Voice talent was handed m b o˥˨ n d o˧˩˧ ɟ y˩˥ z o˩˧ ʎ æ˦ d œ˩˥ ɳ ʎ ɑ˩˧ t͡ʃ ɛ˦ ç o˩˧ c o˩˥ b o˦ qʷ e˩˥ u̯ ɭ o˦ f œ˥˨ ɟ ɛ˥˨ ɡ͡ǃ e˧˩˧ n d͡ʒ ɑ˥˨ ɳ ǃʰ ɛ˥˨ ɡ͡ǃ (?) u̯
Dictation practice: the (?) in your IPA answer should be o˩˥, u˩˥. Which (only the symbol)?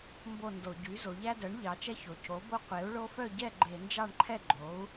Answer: o˩˥